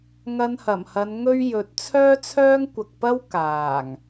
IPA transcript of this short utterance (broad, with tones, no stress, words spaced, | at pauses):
ŋɐ˧nhɐ˨˩mhɐ˨˧n ŋɵ˥ɥjɵ˨˥t̚ t͡sʰœː˥t͡sʰœː˥ŋkʷɐ˨k̚pɐ˥w kaː˨˩ŋ